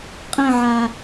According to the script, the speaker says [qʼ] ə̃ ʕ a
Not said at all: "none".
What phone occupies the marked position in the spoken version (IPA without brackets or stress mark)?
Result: qʼ